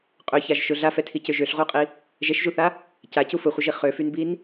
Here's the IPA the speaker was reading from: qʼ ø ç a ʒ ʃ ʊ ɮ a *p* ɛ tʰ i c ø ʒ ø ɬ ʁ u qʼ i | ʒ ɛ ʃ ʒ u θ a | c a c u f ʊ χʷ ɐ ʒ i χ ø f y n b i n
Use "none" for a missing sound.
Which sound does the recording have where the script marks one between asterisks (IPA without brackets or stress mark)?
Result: f